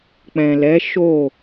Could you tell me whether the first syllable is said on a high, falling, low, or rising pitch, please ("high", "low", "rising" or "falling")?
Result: low